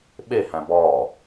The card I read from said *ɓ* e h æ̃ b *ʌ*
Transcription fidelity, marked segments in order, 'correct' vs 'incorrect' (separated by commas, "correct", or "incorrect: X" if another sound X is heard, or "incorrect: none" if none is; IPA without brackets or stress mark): correct, incorrect: ɒ